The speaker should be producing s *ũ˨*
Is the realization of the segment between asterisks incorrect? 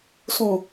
no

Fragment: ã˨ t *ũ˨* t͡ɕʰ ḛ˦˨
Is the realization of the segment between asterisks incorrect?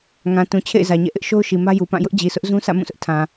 no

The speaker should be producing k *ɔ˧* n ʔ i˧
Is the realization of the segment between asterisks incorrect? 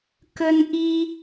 yes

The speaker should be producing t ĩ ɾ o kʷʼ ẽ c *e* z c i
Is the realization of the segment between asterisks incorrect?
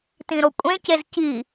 no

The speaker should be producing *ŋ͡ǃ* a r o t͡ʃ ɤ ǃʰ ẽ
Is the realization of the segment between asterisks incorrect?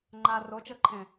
no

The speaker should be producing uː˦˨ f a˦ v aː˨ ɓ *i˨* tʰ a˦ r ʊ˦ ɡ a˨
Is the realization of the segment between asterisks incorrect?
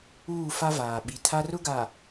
no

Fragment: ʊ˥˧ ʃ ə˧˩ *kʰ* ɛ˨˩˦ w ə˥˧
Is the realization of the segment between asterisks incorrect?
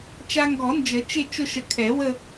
no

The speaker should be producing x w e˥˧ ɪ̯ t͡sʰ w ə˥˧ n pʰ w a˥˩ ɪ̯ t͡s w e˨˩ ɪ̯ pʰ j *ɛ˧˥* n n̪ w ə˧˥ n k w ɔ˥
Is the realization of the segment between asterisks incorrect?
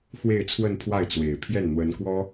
yes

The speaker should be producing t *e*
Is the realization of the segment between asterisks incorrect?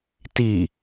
yes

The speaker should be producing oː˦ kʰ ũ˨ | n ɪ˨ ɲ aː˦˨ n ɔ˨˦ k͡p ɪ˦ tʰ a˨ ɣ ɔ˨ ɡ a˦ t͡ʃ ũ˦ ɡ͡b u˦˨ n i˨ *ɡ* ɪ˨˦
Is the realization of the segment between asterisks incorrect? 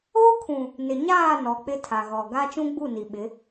yes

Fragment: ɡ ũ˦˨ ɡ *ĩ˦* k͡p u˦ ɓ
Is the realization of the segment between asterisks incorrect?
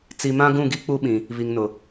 yes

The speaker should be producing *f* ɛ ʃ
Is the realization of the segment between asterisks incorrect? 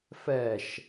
no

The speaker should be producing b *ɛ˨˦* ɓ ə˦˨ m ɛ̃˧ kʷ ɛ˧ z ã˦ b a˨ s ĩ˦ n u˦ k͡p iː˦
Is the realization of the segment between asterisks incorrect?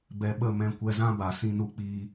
yes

